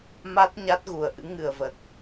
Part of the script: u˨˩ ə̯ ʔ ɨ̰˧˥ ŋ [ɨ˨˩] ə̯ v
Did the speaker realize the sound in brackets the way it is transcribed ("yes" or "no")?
yes